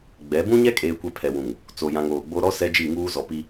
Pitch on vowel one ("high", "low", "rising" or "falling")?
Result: rising